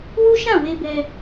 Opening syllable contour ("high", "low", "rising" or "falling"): high